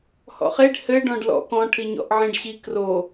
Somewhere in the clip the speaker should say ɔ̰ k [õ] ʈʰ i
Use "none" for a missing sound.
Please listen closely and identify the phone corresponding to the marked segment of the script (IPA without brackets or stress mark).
ɔ̃